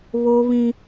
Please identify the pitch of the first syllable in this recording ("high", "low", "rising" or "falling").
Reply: high